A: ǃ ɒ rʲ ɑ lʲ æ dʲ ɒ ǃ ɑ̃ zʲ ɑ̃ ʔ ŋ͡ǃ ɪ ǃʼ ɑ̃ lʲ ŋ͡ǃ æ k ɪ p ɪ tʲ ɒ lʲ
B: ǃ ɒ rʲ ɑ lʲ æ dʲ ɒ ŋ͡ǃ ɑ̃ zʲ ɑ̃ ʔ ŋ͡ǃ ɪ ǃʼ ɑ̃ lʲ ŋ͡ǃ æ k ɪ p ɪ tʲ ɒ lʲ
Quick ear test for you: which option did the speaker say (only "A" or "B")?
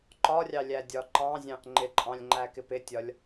A